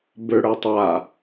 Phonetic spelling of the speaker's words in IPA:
b ø ɽ ə˞ tˤ a

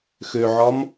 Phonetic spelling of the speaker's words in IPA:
x ø ʕ ɒ m

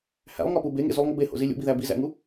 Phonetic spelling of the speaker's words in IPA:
h æ̰ lˠ ŋ ɒ p u b e ŋ ḛ z u lˠ ŋ o b e h o̰ z i lʲ ṵ b i ð æ b i z æ̰ ŋ u

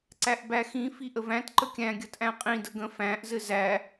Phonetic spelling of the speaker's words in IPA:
ǀ æ ʔ b æ x ĩ f i ʔ ə v æ̃ t ǃ ə kʲ æ̃ ɡʲ ɐ t ʔ æ̃ qʼ ĩ d ə ɡ ə̃ f æ̃ ʔ z ɘ z æ

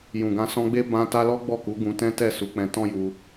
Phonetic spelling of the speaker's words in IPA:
j ũ˨ ɡ ã˧ s ɔ̃˧ ɡ͡b e˦ b ã˧ t a˧ l ɔ˦ ɡ͡b ɔ˦˨ k u˨˦ ɡ ũ˧ t ɛ̃˦ t ɛ˦˨ s u˨˦ k͡p ɛ̃˧ t ɔ̃˦ j u˧

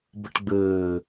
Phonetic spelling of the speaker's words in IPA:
b ə ʈ ɡ͡b ɘː

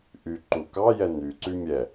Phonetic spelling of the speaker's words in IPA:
ʔ y ǃ u k ɑ j ɛ n y ǀ y mʲ ɛ

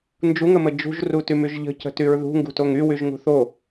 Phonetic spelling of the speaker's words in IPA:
n d͡ʒ u ŋ ə m ə d͡ʒ ṳ ʒ r u t y m y ʒ ʎ ə̤ c ə̤ t y ɹ ð ṳ ŋ ɡ ṳ t o ŋ y w y ʒ ŋ ṳ θ o

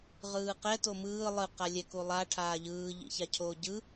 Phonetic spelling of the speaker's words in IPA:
ʁ ɯː q ɛ t o m ɯː lˠ ɯ q a lʲ ɛ k u lˠ a ʈʰ aː ʎ ɯː ʎ ḭ ç a cʰ oː ɟ ɯ

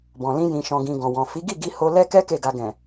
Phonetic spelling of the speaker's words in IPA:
b ɔ̃˨ l ĩ˧ j ĩ˨ ʃ ɔ̃˨ ɡ ĩ˨ ɡ ɔ̃˨ w ɔ̃˨ f i˨˦ ɡ i˦˨ ɡ i˧ h o˧ l ɛ˦ k ɛ˦ k e˦˨ ɡ a˧ ɡ ɛ̃˨

